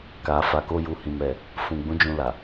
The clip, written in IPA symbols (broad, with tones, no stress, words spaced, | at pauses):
ka˨fa˨ko˧ ju˨hĩ˨mɛ˨ | fũ˨ɡ͡bũ˨˦ d͡ʒũ˧la˨